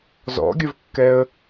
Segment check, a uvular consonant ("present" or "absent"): absent